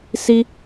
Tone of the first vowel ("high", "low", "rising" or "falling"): high